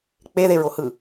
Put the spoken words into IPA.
k͡peðeɹohɯ

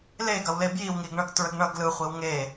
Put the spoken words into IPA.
leɡɐwle bjiwŋiɡɳʌɡ tɹəɡɳʌɡ lɯχʷiw ŋe

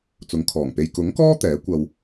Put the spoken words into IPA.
t͡sʊ˨˧ŋkʰɔː˨˩ŋpe˧j kʊ˨˥ŋkɔː˥ t̪ɛː˨˥ kʷɐ˧w

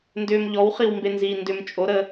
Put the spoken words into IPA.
ndʏːm ʎɔwχiw mbenziːndʏm t͡ʃʼoɾəː

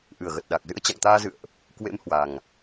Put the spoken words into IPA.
ʔɨ˨˩ə̯ɣə˨˩t̚ɗa˨˩k̚zɨ̰˧˥ə̯ t͡ɕa̰˧˨ŋt̪aː˧zɨ̰˧˨ə̯ʔ | kwḛ˧˥m hwa˨˩ŋ

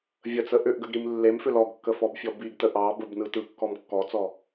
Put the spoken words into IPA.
vʲət͡sə ʔʏʔɡəɡɾim lːemfʏ lɔɡkːəfɔbfʲɔ biɡtə ʔɑ bəbnɯ tɯkːɔm kːɔt͡sɔ

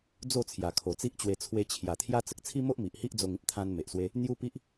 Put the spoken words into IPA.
d͡zo˥˧t͡sʰja˨˩ kʰo˨˩t͡si˦ʔt͡ɕwe˧ t͡sʰwe˧t͡ɕʰja˨˩t̪ʰja˦ t͡sə˨k̚t͡sʰi˦mo˦ʔ mi˨ʔhi˦ʔd͡zo˧ŋĩ˦p̚ t̪ʰã˧n me˨ʔswe˦ | n̪ju˦pi˦ʔ

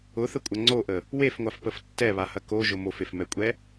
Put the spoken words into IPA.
ʊθəkʷʼɐ ŋ͡ǀoʔə | wefŋʷafpəf tːɛβahɐ koʒʊ mofefmɛkʷʼɛ

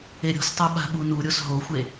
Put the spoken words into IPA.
eɾʲo̤stˤo ɓa̤ɓunuɾʲos ɦoxʷe

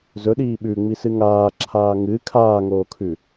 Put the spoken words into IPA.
zɵɗiː ɓʉŋ͡misɨ ŋaːǁʰaː ŋɨ kʰaːŋoːkʰʉ

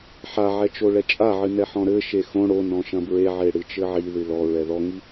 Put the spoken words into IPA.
ħaʕɛ t͡ʃoɭɛt͡ʃʼaʕɨ nɛħɔ̃ɾɘʃe xõ ɽonɔ̃ ʃɐ̃bɹeʕe ɽɨt͡ʃɘʕiðɨ lɔɹɛ ðɔŋi

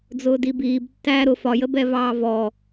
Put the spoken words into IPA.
d͡zʊːdibiːb tːæːɾʊ fɒjəbɛvɑː vɔ

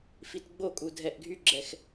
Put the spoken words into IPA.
fitɡ͡bokʼu dʱɛʔɡʱyɡ͡ǁɛx

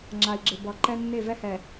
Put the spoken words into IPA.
ŋ͡ǁa˨i̯ɡ͡ǁɪ˨ bʌ˨ ǃɛ˦ nːe˦˨vɛ˦hɛ˨

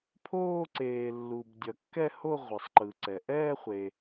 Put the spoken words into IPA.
pʰoː˥˧ǀeː˩ lːu˩b dʲʌ˩kːɛ˥˧ho˥˧ ʁʷʌ˩sˤǃɯ˩ǀɛ˩ ʔɛː˥˧χʷe˩

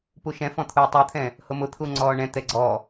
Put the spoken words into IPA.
puʃɛ̃fɔ̃t̪ʰuː tˤut̪ʰɛ̃ | hʊmʊt̪ʰu ŋ͡ǀɔːɳɛ̃ t̪ɛɡ͡ǀɔ

